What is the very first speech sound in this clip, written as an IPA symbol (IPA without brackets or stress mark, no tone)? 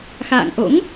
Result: x